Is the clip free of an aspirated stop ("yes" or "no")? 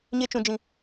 yes